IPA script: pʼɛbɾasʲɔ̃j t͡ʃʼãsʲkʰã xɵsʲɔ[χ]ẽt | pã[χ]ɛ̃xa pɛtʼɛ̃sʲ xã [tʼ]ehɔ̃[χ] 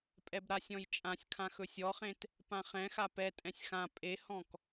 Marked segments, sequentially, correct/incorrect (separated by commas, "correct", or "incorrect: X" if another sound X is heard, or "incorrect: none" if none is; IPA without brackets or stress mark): correct, correct, incorrect: pʼ, incorrect: k